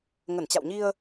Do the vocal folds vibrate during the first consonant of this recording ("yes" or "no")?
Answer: yes